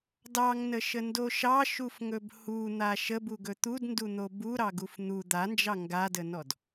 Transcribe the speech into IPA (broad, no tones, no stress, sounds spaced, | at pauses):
d ɑ ŋ n ə ʃ ə n d o ʃ ɑ ʃ u f ŋ ɵ b h u n̪ a ʃ ə b u ɡ ɵ t̪ u d n d u n̪ o b u ɾ ɑ ɡ u f n̪ u d̪ a n d͡ʒ ɑ ŋ ɡ a d ə n ɔ d